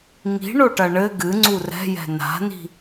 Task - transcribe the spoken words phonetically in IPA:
ŋi̤ɳoʈɐ ɳɘ ɡɨŋ͡ǀu rɛ̤jɛ̤ na̤ni̤

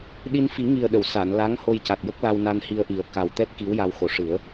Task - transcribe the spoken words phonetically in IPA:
ɗi˧nfi˨˩˦ŋi˨˩ə̯ɗə˨˩˨w sa˨˩˨nla˧˥ŋ ho˧jca˨˩t̚jə˦˥k̚la˧w na˧nhi˧ə̯ʔi˨˩ə̯ ka˨˩wt̪ɛ˦˥t̚ ki˧˥wja˧w xo˨˩˦ʂɨ˨˩˦ə̯

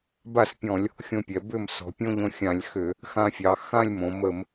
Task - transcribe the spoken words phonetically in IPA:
ba˥˩spʲɔ̃˧˩˧lʲ | xʲõ˧pʲɛ˩˧ bʏ˥˩m sɔ̤˩˧pʲõ˥˧ʎõ˧ xʲã˧˩˧lʲxʏ˧˩˧ | xã˧fʲɑ˩˧ xã˥˧lʲmõ˩˧ mə˧˩˧m

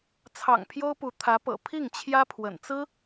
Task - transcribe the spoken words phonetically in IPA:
t͡sʰɑ̰˨˩ŋ pʰjo˥ʊ̯pu˧˥ t̪ʰä˧˥pɤ̰˨˩ pʰi˥˩ŋ t͡ɕʰjä˥pʰwə̰˨˩nt͡sɹ̩˥

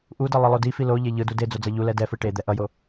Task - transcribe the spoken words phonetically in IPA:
ʔudʌ lˠilˠodifi loʎe ʎɯdu ded͡zo d͡zʌʎulɛ dɛfɯ ʈe d̪ɛʔʌjo

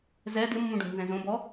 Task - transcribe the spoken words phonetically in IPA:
zɛ dɪmːũɖũbnzɛ̃ zõbɔ

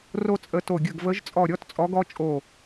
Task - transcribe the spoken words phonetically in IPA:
ro˥t͡sʼə˧˥to˦˨ ɡʲə˦˨ɡvə˧˥ʒt͡sʼɔ˦˨ɾʲɔ˥t t͡sʼɔ˧˥ɡɔ˥t͡ʃʼo˦˨

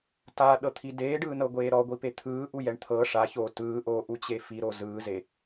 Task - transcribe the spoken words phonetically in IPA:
taɗɤt̪ʰi deːɖɯːnɤɡʷeː ɾɔɡʷipe t̪ʰɯːʔujɛɳ t̪ʰɤ ʂaçoː tɯːʔoːʔut͡ɕe fiɾo zɯːze

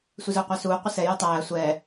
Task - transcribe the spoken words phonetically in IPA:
sʷɪzʊːqʷɑsuː qʷɪsɛ jɜtˤæː sʷɛː

